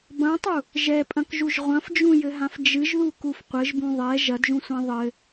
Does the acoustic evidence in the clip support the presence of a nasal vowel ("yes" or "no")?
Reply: yes